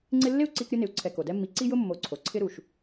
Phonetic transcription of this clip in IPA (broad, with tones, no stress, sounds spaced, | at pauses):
ŋ͡ǀ ɪ˦ lː ɪ˥ u̯ ǀ i˦ k ɾʲ ʊ˦ n ɪ˨ u̯ ǀʰ ɛ˨ k o˩ d ɛ˦ mː i˨ ǀ i˥ j ʊ˥ mː o˨ ǀʰ o˩ ǀʰ ɪ˦ ɾ u˩ ʃ